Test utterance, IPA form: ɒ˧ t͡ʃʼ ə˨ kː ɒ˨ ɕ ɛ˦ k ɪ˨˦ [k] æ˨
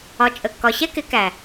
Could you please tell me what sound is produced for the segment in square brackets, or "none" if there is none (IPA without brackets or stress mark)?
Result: k